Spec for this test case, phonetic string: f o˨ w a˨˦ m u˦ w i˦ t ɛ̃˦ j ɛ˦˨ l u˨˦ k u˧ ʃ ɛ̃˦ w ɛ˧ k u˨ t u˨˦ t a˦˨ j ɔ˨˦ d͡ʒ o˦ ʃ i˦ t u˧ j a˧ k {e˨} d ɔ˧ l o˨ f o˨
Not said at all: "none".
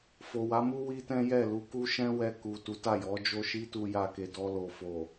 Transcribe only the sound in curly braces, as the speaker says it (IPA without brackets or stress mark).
e˨